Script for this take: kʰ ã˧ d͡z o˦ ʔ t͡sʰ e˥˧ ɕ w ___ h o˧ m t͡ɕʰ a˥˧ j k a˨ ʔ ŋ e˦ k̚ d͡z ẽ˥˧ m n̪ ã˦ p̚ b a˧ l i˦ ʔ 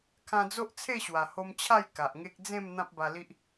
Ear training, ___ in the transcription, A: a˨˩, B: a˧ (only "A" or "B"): A